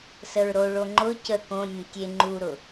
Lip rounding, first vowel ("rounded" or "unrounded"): unrounded